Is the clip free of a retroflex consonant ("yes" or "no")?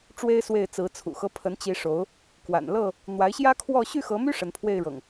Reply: no